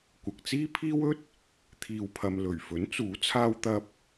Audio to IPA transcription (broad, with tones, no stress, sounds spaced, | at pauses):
kʷ ɐ˨ k̚ t͡s iː˥ pʰ iː˥ w ɵ˥ t̚ | t̪ʰ iː˨ w pʰ ɐ˨ m l ɵ˨˩ ɥ f ɵ˨˥ n t͡s uː˨˥ t͡sʰ aː˧ w t̪ ɐ˧ p̚